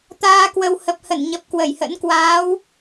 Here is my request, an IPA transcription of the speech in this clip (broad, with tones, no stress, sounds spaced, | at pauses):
t̪ aː˧ k w ə˧ w h ə˨˩ p̚ h ə˧˩ n ɲ ə˨˩ p̚ k w ə˧˩ j h ə̰˧˥ n k w aː˨˦ w